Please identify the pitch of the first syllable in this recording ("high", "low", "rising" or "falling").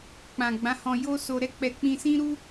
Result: low